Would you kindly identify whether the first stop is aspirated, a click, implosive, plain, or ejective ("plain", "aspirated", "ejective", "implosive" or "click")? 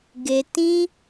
plain